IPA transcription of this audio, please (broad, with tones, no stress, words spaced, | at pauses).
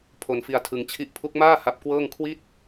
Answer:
pʰo˧nfi˧a̯tʰɯ˧ŋ t͡ɕʰi˦˥ʔpʰu˦˥k̚maː˥˩ ha˦˥p̚kwɤː˥˩ŋ kʰwi˥˩t̚